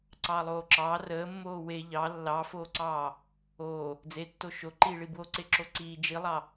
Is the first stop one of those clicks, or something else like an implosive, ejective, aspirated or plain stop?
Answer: click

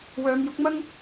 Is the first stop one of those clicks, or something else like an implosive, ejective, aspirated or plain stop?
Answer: plain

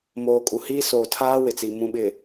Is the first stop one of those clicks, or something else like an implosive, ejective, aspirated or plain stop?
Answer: ejective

